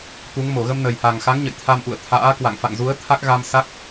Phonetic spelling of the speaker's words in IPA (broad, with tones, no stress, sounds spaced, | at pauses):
t̪ u˨˦ ŋ m o˧˩ ɣ ə˧ m n ə˨˩ j h a˨˩ ŋ x a˨˦ ŋ ɲ ə̰˧˨ j t̪ʰ a˧ m ʔ ṵ˧˨ ə̯ t̪ʰ a̰ː˧˥ k w a̰˧˨ ŋ f a̰˧˨ ŋ z u˨˦ ə̯ t̪ʰ a˦˥ k̚ ɣ a˧ m s a˦˥ k̚